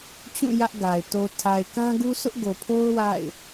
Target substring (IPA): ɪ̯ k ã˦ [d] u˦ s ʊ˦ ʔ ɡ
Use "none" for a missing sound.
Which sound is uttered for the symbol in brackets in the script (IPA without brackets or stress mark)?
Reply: ɡ